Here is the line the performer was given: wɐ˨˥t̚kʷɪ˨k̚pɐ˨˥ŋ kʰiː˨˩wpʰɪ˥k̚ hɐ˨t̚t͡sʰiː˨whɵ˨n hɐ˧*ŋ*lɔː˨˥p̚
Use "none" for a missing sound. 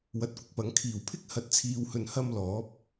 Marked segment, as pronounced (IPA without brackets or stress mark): m